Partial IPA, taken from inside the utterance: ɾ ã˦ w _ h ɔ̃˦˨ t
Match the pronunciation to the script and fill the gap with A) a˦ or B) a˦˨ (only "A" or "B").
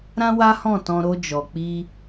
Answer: A